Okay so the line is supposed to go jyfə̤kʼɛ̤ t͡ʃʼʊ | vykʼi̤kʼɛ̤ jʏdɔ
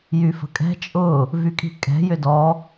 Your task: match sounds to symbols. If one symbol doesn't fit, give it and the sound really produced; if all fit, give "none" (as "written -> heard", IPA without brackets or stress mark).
none